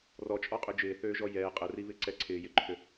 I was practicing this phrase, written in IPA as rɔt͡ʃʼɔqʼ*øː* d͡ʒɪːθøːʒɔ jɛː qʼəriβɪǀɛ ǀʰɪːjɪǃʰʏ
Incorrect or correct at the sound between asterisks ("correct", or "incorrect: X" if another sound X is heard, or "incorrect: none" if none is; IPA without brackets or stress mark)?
incorrect: ø